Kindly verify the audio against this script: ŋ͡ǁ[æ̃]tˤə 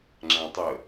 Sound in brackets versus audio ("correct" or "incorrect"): correct